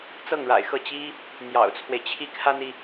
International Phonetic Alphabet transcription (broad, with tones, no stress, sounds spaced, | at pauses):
t͡s ɤ˥˩ ŋ ɻ a̰˨˩ ɪ̯ x ɤ˥˩ t͡ɕ i˥ | n̪ j ɑ̰˨˩ ʊ̯ t͡sʰ w e˦ ɪ̯ t͡ɕʰ i˥˩ kʰ a˥ n i˨